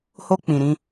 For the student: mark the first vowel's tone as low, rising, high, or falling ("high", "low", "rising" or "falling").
high